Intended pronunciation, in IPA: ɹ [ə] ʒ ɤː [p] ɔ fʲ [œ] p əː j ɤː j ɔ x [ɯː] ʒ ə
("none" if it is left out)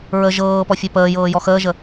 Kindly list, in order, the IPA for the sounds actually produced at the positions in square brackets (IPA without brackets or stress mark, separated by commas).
ə, p, œ, əː